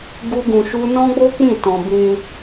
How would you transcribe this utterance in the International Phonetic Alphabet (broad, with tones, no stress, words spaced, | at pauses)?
ɡu˦ɡũ˧ʃu˦ nɔ̃˦ɡ͡bo˦k͡pĩ˦˨ tɔ̃˧ bĩ˧